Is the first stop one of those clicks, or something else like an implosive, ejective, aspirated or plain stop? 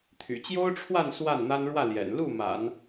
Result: aspirated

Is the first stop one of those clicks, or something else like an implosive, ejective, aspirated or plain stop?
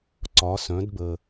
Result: click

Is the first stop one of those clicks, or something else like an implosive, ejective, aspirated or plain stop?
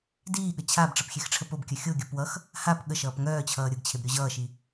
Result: plain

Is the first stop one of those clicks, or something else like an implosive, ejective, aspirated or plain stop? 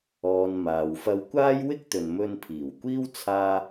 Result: plain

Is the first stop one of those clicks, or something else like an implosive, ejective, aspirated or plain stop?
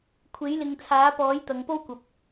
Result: aspirated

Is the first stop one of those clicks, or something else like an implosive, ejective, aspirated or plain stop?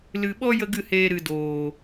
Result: implosive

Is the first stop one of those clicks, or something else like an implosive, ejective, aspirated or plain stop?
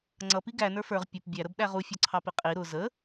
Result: click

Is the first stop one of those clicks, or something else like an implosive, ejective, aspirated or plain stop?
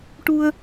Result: plain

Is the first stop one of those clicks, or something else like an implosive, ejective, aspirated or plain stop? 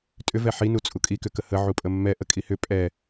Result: ejective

